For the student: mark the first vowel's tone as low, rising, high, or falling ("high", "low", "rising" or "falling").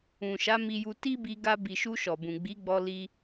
low